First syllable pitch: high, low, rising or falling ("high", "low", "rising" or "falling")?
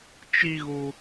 high